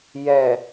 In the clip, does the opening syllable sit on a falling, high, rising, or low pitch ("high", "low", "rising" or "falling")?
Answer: low